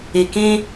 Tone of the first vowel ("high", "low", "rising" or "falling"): low